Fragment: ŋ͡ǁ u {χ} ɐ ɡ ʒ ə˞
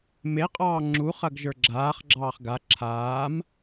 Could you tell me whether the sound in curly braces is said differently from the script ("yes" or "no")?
no